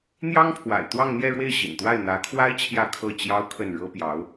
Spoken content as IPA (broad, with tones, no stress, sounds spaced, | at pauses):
n̪ j ɑ˥ ŋ pʰ w a̰˨˩ ɪ̯ t̪ w ɑ˥˧ ŋ n̪ j ɛ˥˧ ɻ w e˥˩ ɪ̯ ɕ ḭ˨˩ n t̪ w a˥˩ ɪ̯ n̪ ä˧˥ kʰ w a˥ ɪ̯ t͡ɕʰ j ä˥˧ kʰ ɤ˥˩ t͡ɕ j ɑ˥ ʊ̯ kʰ ə˥˩ n ɻ ɤ˥ p j ɑ˧˥ ʊ̯